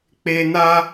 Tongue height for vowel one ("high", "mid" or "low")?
mid